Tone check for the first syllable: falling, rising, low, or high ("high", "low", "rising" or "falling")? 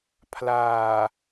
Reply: low